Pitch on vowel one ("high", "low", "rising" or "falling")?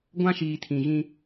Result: high